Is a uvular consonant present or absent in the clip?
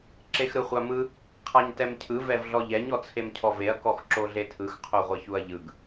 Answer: present